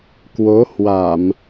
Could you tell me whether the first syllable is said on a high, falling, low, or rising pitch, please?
rising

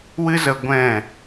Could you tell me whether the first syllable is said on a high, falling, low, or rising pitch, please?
high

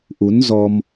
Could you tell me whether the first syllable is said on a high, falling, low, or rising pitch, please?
rising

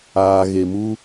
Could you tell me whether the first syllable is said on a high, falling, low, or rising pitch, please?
low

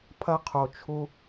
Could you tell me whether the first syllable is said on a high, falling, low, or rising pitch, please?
low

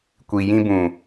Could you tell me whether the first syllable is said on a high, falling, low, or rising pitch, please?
low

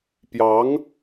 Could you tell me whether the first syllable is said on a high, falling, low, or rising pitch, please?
rising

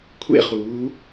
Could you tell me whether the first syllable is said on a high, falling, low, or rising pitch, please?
falling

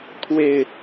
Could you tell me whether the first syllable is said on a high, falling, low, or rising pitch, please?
low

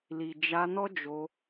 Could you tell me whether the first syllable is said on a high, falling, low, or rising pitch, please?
low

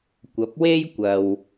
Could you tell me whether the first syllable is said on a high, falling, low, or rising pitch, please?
rising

